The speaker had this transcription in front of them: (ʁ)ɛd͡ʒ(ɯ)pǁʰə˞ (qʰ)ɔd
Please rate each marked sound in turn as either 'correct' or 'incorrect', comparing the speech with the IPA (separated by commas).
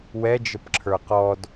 incorrect, incorrect, incorrect